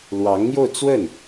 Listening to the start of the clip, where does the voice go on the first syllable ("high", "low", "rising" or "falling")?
rising